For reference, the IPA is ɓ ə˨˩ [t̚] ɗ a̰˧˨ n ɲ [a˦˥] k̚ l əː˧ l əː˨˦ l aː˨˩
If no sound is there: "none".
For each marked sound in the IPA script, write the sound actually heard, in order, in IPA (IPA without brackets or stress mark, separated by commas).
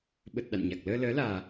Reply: t̚, a˨˩